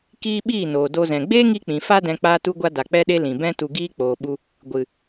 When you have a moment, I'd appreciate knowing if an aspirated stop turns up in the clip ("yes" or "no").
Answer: no